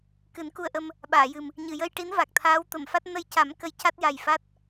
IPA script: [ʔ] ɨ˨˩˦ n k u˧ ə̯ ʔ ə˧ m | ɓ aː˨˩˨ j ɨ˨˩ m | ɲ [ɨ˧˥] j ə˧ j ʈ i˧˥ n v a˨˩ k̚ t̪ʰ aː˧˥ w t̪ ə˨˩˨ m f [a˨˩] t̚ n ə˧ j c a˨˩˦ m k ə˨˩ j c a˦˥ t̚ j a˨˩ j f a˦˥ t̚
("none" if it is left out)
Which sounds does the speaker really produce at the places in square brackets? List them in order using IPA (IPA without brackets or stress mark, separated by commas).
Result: k, ɨ˨˩˨, a˦˥